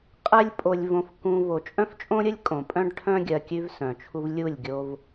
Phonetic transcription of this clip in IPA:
qʼɛ˦lʲ pʼo˧lʲvõ˧fkũ˧ vo˨t͡ʃʼœ̃˦ft͡ʃʼõ˦ɾʲə˦lʲ kʼõ˨pʼœ̃˦ɖʈʰœ̃˦ ɡʲɜ˧kʲʉ˦vsœ̃˨t͡ʃʰu˦v lʲu˦˨lʲɡʲo˧v

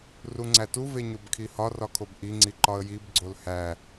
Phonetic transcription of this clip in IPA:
ruŋ͡ǀætu veɲobkʰihɒ rɒkʰobʔi ŋ͡ǀiǃɒə̯jib ɡ͡ǀolhæ

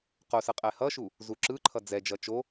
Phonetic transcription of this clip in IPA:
qosɯ qʼɛhʌʃu | zuǁɯǃʰʌ d͡zɛd͡ʒʌ t͡ʃo

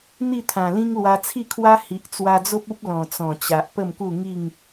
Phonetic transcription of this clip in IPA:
n̪i˥˧t̪ʰã˨˩lĩ˦ŋ lwa˧t͡sʰi˥˧kʰwa˦ hi˨ʔ t͡swa˧d͡zo˦p̚u˦p̚ lɔ̃˨˩t͡sɔ̃˨˩t͡ɕa˨ʔ pə˥˧mku˥˧ŋi˥˧ŋ

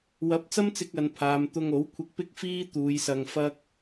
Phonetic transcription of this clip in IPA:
wɐ˨˥p̚t͡sɐ˥mt͡sɪ˧k̚ ɐ˨npʰaː˨m t̪ʊ˧ŋo˨˥w kʷʰɪ˧k̚pɪ˥k̚ fiː˥ t̪uː˨˧jsɐ˧ŋ fɐ˥k̚

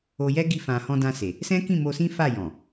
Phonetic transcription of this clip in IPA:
o˧jɛ˦ ɡi˧fã˨ hɔ̃˧dã˧se˨ | sɛ̃˦kĩ˦˨mo˧sĩ˦ fa˦˨jɔ̃˨

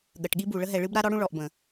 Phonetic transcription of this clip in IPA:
ɠə˨ʈɠi˦bu˨ ɭə˦ɦɛ˨ɭɨ˦b ɾa˦ɾɔ˦ɽũ˦ ɭɔ˨ʔbə̃˨

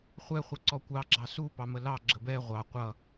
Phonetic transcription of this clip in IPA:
χʷɛχʷʌ ǀɔkʷɑɡ͡ǁɑ supɑ məlɑ ɡ͡ǁəbɛ ʁʷɑ qʷʌ

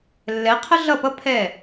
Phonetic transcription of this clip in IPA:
lːɛ˨˦qʰə˦ɮʌ˦˨pʌ˦ pʰɛ˦˨

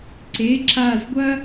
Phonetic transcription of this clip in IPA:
ǀe˩˧˩ǁa˧˩zɡʷɐ˥

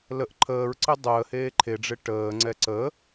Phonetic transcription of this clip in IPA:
ləʔ ǃʰəːɹǀɪ dˤəːheː ǃʰeɖ͡ʐɪ ʈəːŋ͡ǀɛ ǀə

